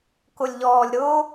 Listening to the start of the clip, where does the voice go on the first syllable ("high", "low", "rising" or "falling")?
low